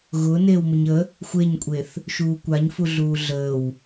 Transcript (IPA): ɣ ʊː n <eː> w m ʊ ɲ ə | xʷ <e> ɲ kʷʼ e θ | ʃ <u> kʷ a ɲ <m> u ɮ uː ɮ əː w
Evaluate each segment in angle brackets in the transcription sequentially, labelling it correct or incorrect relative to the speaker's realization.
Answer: correct, correct, incorrect, incorrect

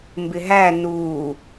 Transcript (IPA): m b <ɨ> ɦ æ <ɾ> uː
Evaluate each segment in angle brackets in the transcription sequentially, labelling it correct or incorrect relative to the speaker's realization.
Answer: incorrect, incorrect

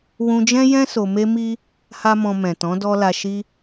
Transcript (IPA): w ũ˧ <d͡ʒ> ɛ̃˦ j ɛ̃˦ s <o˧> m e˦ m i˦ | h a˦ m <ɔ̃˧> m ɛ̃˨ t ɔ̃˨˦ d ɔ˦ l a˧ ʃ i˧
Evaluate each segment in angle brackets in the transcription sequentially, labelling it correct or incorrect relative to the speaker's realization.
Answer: correct, correct, correct

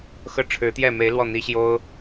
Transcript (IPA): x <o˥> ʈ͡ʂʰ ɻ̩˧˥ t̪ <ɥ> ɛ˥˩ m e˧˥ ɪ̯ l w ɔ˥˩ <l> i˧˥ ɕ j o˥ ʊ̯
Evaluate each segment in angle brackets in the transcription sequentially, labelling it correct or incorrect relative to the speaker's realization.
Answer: incorrect, incorrect, incorrect

